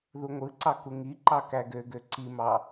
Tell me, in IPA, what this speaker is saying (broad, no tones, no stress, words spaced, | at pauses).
ðuŋʷɯǀɑ kuŋiǃɑ kæɡøɡø ǀimɑ